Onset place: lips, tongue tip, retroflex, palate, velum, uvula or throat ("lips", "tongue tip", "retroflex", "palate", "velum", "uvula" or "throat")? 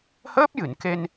throat